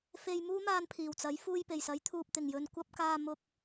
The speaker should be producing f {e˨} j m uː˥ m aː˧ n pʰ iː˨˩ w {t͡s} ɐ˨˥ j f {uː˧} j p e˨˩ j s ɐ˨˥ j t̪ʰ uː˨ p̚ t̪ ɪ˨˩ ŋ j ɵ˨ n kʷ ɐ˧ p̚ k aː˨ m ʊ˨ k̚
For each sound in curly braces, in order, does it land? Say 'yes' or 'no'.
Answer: no, yes, yes

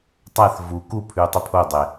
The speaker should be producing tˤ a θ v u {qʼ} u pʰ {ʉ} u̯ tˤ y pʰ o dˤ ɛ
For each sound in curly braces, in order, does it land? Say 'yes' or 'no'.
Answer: no, yes

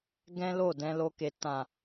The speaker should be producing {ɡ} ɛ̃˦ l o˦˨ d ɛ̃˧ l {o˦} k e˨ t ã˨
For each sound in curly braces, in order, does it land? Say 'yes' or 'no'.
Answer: yes, no

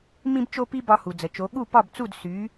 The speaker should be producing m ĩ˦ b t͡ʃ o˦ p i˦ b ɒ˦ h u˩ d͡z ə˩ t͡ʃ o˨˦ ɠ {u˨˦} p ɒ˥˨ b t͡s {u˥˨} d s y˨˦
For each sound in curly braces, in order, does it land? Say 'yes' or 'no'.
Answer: no, yes

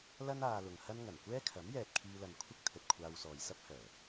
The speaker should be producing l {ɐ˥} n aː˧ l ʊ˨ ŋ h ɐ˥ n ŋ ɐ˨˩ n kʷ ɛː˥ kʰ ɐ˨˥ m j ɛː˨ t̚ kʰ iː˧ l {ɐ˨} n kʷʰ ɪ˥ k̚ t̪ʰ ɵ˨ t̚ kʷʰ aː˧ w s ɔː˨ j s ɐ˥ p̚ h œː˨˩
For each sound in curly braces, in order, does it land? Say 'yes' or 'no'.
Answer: yes, yes

